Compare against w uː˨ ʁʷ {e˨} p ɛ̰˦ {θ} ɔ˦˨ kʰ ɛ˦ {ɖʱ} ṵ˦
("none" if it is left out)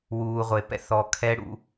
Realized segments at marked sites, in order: e˨, θ, ɽ

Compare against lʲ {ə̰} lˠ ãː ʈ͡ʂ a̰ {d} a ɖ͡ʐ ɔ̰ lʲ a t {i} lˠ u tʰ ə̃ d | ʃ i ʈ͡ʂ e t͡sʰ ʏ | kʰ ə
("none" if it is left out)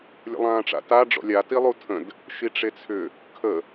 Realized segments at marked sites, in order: ə̰, t, i

